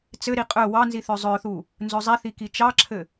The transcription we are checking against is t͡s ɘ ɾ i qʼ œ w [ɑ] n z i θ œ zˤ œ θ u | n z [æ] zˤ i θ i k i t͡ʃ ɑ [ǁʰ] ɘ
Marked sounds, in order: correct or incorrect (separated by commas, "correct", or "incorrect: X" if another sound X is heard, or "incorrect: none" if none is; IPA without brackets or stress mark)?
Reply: correct, incorrect: œ, correct